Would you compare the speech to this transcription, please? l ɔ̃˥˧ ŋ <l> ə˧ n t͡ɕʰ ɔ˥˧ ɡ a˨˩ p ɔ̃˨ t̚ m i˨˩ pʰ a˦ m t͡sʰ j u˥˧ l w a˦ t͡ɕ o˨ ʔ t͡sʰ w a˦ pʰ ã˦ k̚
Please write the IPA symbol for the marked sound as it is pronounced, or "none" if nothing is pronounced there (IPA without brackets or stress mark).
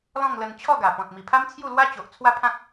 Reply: l